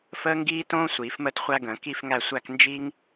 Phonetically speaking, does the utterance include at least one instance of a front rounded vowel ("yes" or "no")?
no